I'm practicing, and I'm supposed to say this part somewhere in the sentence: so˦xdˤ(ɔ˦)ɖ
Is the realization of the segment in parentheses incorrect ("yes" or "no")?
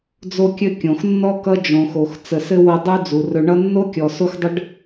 yes